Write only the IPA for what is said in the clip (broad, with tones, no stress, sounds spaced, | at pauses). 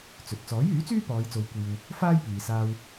t͡s ɵ˨ t̚ t͡s ɔː˨˥ j yː˨˥ t͡s yː˥ p ɔː˨˧ j t͡s o˨˧ w kʷ iː˨ w | f aː˥ j p iː˨ s aː˧ w